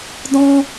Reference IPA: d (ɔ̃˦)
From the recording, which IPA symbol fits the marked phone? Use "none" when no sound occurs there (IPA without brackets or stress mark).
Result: ɔ̃˦